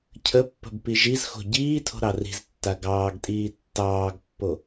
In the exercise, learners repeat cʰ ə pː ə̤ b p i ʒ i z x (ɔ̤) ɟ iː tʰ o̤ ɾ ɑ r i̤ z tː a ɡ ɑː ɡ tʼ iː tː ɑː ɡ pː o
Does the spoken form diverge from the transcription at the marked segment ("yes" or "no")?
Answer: yes